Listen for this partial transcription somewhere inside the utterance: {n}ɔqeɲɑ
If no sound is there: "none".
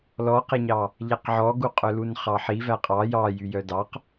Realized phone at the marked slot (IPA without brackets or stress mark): l